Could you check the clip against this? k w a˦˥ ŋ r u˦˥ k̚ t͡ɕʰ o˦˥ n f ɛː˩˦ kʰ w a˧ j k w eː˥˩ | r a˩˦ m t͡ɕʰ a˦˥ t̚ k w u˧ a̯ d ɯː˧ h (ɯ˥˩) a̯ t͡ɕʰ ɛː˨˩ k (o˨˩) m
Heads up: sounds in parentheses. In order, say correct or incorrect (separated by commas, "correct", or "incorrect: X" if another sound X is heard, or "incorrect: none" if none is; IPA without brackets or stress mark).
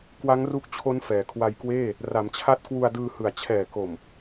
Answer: incorrect: ɯ˨˩, correct